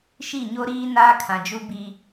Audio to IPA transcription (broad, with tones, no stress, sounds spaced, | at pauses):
ʃ i˦˨ ɲ o˦ ɾ iː˦ n aː˦ kʰ ã˨ d͡ʒ u˦ b i˦